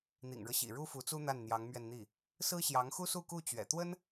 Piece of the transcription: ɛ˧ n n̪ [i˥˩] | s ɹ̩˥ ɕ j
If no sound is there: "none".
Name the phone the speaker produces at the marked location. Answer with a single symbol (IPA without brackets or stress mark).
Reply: i˥˩